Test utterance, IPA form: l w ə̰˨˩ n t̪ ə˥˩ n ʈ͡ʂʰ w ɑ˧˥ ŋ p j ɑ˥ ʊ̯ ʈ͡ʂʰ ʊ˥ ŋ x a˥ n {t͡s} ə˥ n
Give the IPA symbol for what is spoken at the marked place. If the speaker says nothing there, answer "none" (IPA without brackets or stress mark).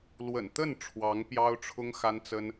t͡s